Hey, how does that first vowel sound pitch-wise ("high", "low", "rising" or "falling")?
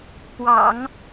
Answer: low